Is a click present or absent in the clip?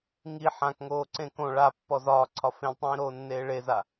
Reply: present